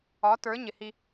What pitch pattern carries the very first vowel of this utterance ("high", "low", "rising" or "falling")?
rising